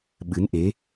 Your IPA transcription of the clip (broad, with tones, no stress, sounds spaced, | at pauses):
ɓ ɨ˨˦ n ʔ e˨˦